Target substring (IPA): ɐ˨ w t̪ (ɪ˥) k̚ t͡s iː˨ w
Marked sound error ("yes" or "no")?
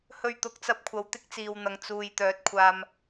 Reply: no